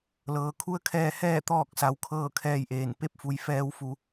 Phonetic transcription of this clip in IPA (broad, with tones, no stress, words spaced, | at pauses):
lɤː˩˧kʰu˧˥ə̯kʰɛː˧ hɛː˥˨ t̪ɔː˥˨k̚sa˩˧w kʰɤː˥˨kʰɛː˥˨jʔeː˧˩n pe˧p̚fu˩j fɛː˧wfu˩˧